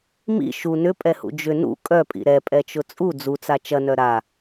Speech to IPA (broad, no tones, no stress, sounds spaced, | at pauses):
m ḭ ʃ u n ʏ pʼ ɛ h ṵ d͡ʒ ʏ n ṵ kʼ œ pʼ ḭ ɾ ɛ pʼ ɛ t͡ʃ ʊ t͡sʼ u d͡z u t͡s a t͡ʃ ɐ n œ ɾ a